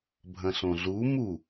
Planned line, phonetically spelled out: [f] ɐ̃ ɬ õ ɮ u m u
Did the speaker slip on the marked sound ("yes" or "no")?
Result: yes